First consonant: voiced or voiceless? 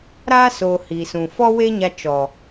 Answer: voiced